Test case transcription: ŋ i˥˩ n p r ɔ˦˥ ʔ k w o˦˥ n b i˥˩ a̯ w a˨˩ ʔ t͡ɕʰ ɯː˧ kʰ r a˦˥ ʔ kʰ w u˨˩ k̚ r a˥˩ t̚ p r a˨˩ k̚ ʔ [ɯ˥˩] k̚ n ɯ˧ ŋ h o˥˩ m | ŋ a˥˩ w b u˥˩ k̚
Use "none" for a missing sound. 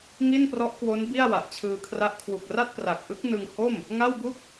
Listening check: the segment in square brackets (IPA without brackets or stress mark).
ɯ˦˥